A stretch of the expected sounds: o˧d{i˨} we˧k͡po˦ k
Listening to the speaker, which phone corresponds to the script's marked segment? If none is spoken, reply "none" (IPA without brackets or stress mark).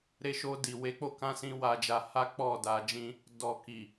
i˨